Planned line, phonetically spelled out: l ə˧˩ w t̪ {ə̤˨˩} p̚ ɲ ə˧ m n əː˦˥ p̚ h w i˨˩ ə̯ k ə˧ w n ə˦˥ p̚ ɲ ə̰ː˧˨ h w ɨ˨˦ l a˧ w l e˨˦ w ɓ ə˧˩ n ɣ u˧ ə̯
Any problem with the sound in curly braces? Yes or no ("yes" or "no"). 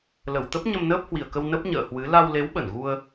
yes